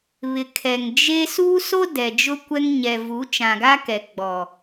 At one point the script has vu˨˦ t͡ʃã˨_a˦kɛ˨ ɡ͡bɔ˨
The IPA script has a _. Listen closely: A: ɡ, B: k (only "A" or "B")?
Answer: A